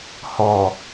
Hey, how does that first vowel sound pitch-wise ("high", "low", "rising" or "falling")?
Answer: low